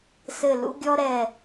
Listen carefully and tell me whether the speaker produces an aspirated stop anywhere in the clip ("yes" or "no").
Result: no